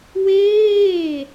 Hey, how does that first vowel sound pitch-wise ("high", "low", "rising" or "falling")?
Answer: falling